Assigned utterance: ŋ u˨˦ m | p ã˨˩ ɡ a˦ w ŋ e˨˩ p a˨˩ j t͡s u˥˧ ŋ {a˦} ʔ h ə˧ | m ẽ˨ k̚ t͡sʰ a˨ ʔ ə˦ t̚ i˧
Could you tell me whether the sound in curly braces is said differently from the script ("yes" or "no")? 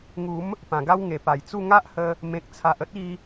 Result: no